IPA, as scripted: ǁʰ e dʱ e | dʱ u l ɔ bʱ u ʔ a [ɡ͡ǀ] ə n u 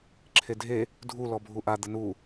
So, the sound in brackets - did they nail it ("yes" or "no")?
no